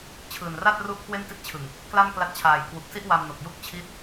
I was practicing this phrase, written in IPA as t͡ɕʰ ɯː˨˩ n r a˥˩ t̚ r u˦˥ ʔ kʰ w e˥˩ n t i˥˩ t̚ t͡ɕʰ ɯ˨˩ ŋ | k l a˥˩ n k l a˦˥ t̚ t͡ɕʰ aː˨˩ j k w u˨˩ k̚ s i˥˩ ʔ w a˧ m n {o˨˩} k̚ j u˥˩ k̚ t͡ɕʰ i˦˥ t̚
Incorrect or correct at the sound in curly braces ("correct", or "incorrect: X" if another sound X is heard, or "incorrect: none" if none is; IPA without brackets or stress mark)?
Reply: correct